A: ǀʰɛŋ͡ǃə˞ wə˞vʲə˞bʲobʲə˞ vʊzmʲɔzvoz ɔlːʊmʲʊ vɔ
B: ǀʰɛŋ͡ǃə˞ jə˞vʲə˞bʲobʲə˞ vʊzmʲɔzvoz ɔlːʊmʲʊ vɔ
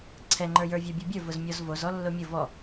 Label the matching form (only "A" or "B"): B